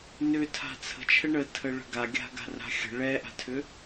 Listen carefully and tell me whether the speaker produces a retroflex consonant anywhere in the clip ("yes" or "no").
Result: yes